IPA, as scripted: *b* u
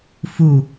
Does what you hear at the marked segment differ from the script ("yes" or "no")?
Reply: yes